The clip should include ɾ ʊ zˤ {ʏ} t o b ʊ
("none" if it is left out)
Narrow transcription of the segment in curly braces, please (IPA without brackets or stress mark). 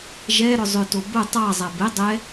ʏ